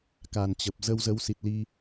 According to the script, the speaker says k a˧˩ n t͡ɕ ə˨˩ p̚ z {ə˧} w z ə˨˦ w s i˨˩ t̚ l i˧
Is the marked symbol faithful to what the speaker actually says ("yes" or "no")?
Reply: yes